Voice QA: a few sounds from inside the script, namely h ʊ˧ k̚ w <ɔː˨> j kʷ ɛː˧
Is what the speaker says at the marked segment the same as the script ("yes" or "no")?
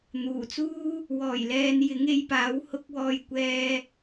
yes